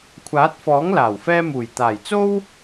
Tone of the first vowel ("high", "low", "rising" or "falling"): rising